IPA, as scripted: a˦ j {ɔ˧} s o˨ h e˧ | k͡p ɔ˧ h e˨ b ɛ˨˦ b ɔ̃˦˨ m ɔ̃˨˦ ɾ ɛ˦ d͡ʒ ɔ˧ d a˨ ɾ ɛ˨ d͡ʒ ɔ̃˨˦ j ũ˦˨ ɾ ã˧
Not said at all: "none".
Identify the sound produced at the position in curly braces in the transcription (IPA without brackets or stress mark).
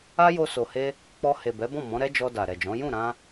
o˧